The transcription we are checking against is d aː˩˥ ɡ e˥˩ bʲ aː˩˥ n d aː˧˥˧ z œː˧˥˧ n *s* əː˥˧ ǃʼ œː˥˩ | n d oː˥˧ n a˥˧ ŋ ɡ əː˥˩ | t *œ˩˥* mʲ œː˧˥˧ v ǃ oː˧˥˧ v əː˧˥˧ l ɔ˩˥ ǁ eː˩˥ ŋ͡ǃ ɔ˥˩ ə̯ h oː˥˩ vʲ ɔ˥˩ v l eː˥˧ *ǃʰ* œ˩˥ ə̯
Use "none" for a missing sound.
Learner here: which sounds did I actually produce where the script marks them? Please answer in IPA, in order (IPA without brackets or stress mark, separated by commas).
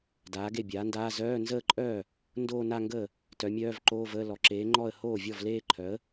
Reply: z, œ˩˥, ǃʰ